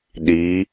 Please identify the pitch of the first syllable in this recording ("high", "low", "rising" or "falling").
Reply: rising